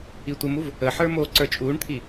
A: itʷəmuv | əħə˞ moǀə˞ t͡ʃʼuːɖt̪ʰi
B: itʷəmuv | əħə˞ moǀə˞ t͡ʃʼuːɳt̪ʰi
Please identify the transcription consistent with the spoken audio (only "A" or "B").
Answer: B